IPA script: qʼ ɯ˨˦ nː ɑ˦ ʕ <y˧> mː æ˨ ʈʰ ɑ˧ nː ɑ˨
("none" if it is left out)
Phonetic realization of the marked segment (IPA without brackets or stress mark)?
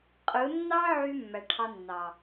y˧